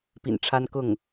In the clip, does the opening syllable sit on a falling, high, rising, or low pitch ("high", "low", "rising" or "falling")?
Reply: low